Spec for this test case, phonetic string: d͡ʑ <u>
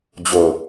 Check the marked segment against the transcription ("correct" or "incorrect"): incorrect